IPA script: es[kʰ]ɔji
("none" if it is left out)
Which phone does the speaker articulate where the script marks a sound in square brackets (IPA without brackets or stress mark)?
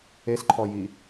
ǃʰ